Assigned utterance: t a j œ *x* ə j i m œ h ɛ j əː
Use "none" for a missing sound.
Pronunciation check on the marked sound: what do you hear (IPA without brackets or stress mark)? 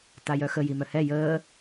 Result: x